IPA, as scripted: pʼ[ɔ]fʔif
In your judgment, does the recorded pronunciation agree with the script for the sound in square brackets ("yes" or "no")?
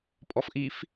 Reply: yes